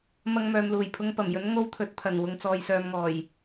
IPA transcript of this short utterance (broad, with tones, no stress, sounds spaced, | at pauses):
m ɐ˧ ŋ m œː˨ m l uː˨˩ j pʰ ʊ˧ ŋ p ɐ˨˩ m j ɵ˨˥ n ŋ o˧ w t̪ʰ ɵ˨ t̚ t̪ʰ ɐ˨˩ n w ʊ˨ ŋ t͡s ɔː˨ j s œː˨ m ŋ ɔː˨˩ j